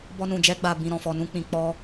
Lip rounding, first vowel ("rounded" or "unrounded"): rounded